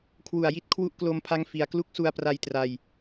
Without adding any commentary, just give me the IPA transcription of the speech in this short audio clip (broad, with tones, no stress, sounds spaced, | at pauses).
kʰ w u˨˩ a̯ j i˦˥ t̚ kʰ w u˦˥ ʔ k l o˧ m pʰ a˦˥ ŋ f i˧ a̯ k l u˦˥ k̚ s u˧ a̯ p r a˧ j t r a˧ j